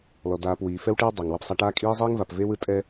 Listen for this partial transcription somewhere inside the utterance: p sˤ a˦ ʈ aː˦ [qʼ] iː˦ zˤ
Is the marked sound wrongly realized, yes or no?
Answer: yes